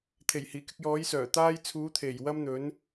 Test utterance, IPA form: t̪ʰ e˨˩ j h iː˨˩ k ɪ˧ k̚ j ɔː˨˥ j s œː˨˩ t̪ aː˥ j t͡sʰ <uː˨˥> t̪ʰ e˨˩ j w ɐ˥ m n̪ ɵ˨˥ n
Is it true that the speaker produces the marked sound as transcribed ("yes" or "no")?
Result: yes